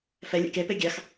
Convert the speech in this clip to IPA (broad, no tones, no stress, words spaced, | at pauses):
fɛ lʲɛ̰ke peɡʲɑx